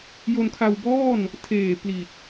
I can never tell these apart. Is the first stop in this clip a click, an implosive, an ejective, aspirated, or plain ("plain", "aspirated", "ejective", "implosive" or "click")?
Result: aspirated